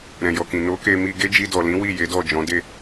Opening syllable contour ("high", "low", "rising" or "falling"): low